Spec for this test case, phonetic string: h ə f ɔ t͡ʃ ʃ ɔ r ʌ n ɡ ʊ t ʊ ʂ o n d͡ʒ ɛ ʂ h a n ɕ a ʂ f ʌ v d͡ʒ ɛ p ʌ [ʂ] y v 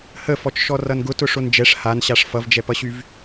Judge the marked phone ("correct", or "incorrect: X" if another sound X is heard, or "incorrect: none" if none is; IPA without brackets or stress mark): incorrect: ɕ